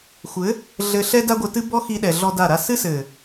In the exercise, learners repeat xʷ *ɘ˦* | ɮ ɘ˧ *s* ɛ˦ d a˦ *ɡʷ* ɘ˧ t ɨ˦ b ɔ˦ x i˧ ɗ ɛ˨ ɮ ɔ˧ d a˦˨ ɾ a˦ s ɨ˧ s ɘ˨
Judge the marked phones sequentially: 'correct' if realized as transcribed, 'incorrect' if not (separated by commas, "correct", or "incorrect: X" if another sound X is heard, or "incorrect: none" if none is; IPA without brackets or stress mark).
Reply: incorrect: ɘ˨˦, incorrect: ɬ, correct